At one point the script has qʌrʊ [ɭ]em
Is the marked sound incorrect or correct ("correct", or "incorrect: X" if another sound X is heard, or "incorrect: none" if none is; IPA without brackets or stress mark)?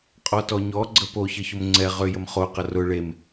correct